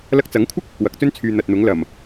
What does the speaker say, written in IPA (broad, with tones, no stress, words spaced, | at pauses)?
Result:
lɐ˧k̚t͡sɐ˨˥ŋkʷʰɪ˥k̚ | wɐ˨k̚t͡sɵ˥n t͡sʰyː˨ n̪ɐ˨t̚n̪ʊ˨˥ŋlɐ˨˩m